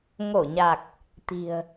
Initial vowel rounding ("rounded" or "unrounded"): rounded